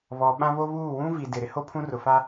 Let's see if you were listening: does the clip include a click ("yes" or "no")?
no